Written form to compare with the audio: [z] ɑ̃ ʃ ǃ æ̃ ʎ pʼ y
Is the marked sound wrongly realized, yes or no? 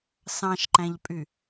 yes